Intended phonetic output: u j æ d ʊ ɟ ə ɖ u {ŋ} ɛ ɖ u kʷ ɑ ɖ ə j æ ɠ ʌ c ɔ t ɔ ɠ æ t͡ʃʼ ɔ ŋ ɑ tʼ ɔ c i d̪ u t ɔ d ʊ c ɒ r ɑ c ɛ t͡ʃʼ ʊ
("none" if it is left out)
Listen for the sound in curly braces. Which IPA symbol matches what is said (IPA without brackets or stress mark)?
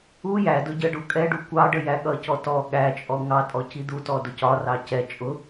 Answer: kʼ